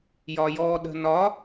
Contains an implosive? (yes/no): yes